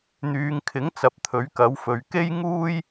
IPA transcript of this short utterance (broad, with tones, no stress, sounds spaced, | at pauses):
n̪ yː˨˧ ŋ kʰ ɪ˨˥ ŋ t͡s ɐ˨ p̚ t̪ʰ ɵ˨˥ ɥ k ɐ˨˥ w f ɵ˨˧ ɥ k e˥ j ŋ uː˥ j